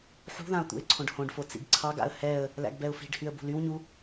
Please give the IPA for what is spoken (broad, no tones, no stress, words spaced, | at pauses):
ħṳðãʊ̯ t̪ṵɪ̯ǀʰõɖhõɖfo t͡sḭɡǀʰɑɡa̰ə̯ hɛə̯ | læ̰ɡbɛʊ̯fi̤ɖhyə̯ bṳlywɲu